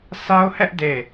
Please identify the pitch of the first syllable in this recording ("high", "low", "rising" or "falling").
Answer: high